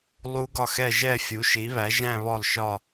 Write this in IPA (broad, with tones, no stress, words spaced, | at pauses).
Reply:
lˠu˦˥ɡɒ˥˩xɛ˥˧ʒɛ˥˧ fʲu˨˥ʃi˨˥βæ˨˥ ʒæ̃˥˧ βɔ˥˩lˠʃɒ˥˧